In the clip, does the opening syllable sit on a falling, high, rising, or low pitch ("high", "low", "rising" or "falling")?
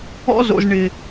high